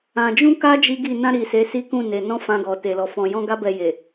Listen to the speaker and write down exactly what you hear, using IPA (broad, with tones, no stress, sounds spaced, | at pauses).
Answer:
ã˨ d͡ʒ ũ˧ k a˦ d͡ʒ i˦ ɡ i˦˨ n ã˧ ɾ i˨ s e˨˦ s i˦ k ũ˦˨ n e˨ n ɔ̃˧ f ã˧ ɡ ɔ˨ t e˨ l ɔ˨ f ɔ̃˨ j ɔ̃˧ ɡ a˦ b ɛ˧ j e˨